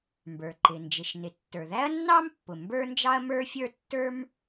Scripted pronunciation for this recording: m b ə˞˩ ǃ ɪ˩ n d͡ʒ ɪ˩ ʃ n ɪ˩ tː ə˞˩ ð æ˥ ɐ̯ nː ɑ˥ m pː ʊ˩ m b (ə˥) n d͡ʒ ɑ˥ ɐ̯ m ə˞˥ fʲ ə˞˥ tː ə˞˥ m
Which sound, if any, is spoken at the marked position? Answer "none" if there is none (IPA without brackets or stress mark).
ə˞˥